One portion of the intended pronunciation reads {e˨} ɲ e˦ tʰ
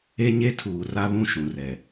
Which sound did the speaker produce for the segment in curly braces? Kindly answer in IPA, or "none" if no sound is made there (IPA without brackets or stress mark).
e˦